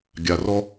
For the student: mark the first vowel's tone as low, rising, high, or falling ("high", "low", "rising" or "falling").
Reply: low